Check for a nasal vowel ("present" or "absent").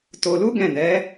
present